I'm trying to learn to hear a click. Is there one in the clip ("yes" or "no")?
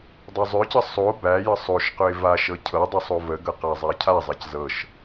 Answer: no